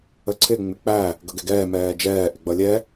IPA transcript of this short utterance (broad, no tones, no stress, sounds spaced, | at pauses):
ə ǀʰ ɪ ŋ͡m ɪ k͡p æ | ɡ ʌ ɡ ɛ ɡ ɛː m ɛː d͡ʒ ɛː ʔ ɪ ɡ͡b ʌ lʲ ɛ